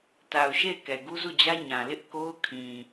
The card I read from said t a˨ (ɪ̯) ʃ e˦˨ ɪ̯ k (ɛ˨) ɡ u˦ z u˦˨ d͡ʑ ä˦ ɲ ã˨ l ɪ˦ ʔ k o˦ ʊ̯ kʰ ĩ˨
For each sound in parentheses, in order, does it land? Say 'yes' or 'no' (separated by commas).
no, yes